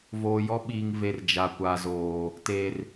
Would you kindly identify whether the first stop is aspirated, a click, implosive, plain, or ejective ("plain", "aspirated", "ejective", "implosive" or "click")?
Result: implosive